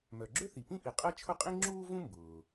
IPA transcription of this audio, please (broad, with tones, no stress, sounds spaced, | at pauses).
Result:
m œ˩ ɡ͡ǁ ø˥ θ i˩ p ĩ˥ ʔ i˩ qʼ ɛ˥ t͡ʃʰ ʊ˥ qʼ ĩ˥ ŋ͡ǁ uː˥ v ũ˥ m b ʊː˩